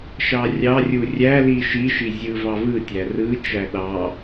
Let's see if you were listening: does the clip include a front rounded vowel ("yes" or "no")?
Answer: no